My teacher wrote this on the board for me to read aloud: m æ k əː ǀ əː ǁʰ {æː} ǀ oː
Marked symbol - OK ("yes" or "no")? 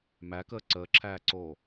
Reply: yes